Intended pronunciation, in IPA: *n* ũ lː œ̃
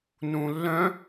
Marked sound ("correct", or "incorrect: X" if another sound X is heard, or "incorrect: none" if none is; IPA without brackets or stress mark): correct